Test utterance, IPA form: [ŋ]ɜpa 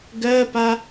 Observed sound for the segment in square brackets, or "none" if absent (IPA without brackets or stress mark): ɡ